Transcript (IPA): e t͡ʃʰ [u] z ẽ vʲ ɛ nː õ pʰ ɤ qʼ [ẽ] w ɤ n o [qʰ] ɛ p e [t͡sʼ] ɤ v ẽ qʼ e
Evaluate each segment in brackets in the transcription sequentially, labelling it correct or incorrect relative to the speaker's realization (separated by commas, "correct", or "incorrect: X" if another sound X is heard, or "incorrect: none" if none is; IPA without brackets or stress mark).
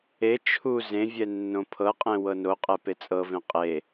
correct, correct, incorrect: qʼ, correct